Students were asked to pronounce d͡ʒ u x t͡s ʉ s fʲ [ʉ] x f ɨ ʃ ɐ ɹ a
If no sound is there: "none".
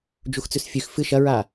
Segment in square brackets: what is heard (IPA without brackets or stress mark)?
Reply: ʉ